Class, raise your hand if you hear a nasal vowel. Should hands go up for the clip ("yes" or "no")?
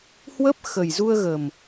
no